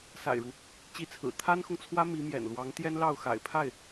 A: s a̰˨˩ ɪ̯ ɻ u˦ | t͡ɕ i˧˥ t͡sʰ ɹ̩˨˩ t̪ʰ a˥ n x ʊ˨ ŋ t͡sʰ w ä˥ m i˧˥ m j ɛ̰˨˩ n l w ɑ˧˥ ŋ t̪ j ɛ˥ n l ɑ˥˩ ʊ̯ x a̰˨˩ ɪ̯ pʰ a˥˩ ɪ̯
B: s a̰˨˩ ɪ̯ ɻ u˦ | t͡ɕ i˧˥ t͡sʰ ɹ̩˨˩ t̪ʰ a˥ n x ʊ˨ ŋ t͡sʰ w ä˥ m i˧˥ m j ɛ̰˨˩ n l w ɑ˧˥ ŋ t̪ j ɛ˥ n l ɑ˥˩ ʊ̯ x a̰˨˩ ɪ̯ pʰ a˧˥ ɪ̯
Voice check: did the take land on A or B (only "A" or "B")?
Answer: A